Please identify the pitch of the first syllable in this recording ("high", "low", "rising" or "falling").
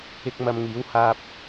high